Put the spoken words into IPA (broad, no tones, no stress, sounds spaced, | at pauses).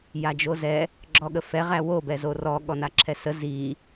j a d͡ʒ o z ɛ | ɡ͡ǁ ɔ ɠ ə f ɛ ʁ æ w o b ɛ z o r ɔ ɠ ɔ n a ǁʰ ɛ s ə z i